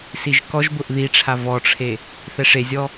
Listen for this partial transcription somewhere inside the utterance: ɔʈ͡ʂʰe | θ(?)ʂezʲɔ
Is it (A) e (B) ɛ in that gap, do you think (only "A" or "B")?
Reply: B